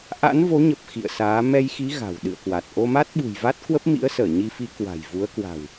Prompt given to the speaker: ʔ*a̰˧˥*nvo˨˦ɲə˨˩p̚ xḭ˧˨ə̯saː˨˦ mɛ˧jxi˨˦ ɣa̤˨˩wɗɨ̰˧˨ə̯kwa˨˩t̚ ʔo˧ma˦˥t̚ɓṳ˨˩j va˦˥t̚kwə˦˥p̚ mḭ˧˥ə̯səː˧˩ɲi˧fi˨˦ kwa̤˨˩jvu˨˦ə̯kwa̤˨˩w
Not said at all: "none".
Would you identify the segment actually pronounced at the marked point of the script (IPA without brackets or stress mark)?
a̰˧˥